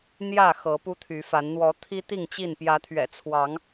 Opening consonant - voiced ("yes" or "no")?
yes